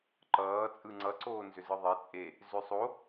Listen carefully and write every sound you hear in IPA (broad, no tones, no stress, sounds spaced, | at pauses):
ǃ ʌː t͡sʼ ɯ ŋ͡ǀ ʌ ǀ oː n z ʏ z ɯ ðˤ e t͡sʼ e | z ʏ sˤ o